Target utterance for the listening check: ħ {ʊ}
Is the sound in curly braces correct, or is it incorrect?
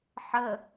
incorrect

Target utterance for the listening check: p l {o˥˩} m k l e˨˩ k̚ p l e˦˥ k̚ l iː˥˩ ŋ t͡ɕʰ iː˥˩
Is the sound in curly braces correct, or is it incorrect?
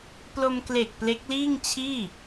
incorrect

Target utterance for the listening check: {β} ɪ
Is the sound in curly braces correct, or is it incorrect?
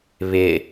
correct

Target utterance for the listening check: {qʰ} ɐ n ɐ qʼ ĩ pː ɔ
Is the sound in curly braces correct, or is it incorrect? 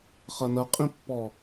incorrect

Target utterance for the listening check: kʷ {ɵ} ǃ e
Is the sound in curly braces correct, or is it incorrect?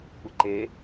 incorrect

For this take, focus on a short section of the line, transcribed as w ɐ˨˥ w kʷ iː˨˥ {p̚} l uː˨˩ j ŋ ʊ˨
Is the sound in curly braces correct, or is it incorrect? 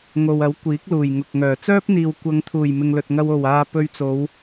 incorrect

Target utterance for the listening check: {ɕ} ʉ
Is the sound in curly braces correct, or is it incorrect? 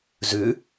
incorrect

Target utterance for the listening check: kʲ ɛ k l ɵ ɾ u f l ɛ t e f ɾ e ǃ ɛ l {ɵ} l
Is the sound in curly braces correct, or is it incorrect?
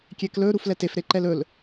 correct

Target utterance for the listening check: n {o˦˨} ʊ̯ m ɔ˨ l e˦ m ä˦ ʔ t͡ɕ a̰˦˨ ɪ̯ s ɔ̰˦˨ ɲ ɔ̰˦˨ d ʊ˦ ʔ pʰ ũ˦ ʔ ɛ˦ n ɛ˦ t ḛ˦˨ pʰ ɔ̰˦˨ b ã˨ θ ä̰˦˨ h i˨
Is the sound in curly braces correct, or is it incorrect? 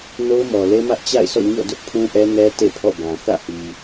incorrect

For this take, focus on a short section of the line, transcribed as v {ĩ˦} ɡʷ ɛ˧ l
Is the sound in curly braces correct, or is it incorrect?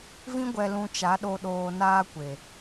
correct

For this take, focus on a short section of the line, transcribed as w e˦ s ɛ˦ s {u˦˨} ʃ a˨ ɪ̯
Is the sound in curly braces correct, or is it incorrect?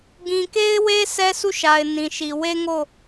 correct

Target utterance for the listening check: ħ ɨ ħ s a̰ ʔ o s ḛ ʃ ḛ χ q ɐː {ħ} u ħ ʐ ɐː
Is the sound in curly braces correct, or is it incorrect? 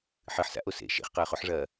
incorrect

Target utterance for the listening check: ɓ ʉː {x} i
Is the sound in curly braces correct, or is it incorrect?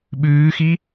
correct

